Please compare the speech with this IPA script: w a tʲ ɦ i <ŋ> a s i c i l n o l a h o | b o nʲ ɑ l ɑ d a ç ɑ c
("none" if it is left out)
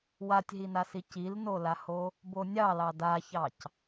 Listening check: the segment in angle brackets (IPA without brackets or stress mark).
n